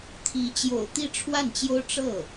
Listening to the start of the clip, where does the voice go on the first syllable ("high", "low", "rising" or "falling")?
rising